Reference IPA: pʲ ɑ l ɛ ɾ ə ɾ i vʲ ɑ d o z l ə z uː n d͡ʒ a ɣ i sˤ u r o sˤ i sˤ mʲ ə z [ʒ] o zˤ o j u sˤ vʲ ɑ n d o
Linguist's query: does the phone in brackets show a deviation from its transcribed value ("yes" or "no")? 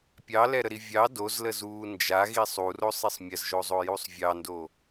no